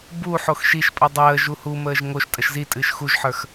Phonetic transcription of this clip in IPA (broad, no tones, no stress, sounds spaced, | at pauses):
b u ħ o x ʃ i ʃ pʼ ə dˤ əː ʒ u h u m əː ʒ ŋ o ʃ tʼ ə ʃ z i tʼ ɨː ʃ x u ʒ ħ ə˞ x